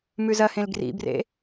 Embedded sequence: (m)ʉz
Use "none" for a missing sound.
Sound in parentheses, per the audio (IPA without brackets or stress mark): m